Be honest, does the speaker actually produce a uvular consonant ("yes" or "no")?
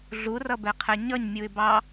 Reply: yes